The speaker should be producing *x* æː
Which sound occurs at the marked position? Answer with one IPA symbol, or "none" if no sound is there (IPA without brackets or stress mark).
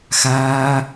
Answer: x